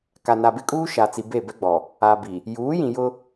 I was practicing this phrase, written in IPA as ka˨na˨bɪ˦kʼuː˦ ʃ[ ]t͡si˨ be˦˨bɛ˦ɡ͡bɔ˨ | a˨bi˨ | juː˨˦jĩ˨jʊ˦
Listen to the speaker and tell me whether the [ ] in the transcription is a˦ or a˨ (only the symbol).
a˨